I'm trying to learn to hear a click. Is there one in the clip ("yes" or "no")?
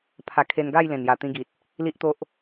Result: no